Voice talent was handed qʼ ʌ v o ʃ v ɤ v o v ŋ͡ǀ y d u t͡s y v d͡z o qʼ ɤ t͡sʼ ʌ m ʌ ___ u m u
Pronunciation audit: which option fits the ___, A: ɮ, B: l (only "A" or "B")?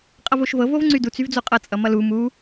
B